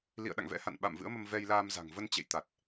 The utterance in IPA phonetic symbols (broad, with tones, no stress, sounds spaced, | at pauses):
l ḭ˧˨ ə̯ ɗ a̰˧˨ ŋ v ɛ̰˧˥ h a̰˧˨ n ɓ a̰˧˨ m v ɨ̰˧˥ ə̯ m ə˧ m v ɛ˧ j l aː˧ m z a̤˨˩ ŋ v ə˧ n t͡ɕ ḛ˧˨ j t̪ a˨˩ t̚